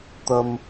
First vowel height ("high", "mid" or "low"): low